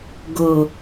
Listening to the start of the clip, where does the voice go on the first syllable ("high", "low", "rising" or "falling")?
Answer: low